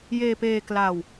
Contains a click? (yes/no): no